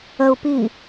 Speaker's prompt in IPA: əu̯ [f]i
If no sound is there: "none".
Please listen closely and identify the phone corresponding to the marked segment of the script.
p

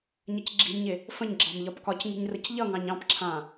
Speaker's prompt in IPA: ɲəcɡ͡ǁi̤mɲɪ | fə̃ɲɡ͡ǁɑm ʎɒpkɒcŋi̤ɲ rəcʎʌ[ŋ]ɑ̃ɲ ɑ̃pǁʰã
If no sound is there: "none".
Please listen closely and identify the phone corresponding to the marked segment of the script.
ŋ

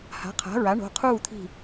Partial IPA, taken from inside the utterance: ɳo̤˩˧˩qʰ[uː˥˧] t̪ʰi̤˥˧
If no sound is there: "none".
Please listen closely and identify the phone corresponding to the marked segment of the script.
uː˥˧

